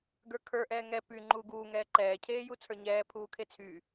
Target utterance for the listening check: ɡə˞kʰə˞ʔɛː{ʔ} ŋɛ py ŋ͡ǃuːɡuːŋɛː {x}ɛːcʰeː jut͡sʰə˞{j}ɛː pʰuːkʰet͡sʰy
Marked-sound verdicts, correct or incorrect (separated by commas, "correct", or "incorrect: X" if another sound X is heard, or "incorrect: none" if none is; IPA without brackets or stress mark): incorrect: none, incorrect: ǃ, incorrect: ɲ